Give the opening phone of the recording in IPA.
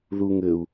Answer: ð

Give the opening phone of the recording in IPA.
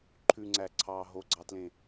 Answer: ǃʰ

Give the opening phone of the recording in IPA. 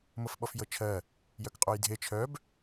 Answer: m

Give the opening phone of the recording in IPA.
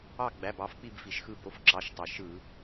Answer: ɑ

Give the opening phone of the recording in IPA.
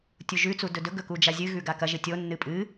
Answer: tʲ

